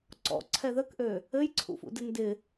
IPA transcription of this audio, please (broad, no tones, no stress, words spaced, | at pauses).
ǀɔ̰ǀʰɛ ðəkʔø | ɘjǀʰṵfṵdɪ ndɪ